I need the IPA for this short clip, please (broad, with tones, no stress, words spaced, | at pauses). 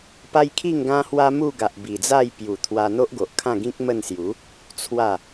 pa˦jkʰi˥˧ŋɡã˦hwa˦ mu˥˧ɡa˨ʔ bi˨˩d͡za˥˧j pju˨˩ t̪ʰwa˧n̪o˦ʔɡo˨ʔ kʰã˥˧ɡĩ˦k̚ mə˥˧n sju˨˦ | t͡sʰwa˥˧